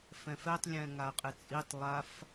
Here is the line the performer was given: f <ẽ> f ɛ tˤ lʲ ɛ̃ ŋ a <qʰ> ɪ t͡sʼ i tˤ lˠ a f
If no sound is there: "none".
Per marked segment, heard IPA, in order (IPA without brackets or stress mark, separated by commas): ɛ̃, qʼ